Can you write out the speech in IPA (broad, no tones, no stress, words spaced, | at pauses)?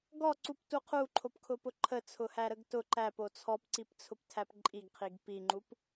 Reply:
ɡɔǀuptu qʰuǃʰopkʰʊpʊ ǃʰət͡sʰʊhæɾəɡ tʊ ǃæpo t͡sʰɔpǀipt͡sʰʊptʰæp ǃʼiɡqʰiɡ piŋ͡ǃup